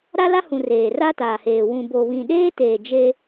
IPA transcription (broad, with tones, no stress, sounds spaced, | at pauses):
ɾ a˦ l a˦ h ũ˨ r eː˨ r a˦ t aː˨ h eː˨ w ũ˨ b o˨ β ĩ˨ ɗ eː˦ t eː˨ d͡ʒ e˦